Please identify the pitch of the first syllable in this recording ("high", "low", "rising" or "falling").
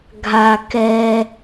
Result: low